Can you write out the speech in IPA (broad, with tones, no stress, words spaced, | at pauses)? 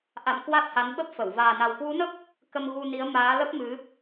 ʔa̰˧˨m kwa˦˥t̚ha˨˦nɓə˦˥p̚fə˧˩w vaː˨˩na˨˩wkwu˨˦nə˦˥p̚ | kə˧mɣu˧ni˨˦ə̯ maː˨˦lə˦˥p̚mɨ˨˦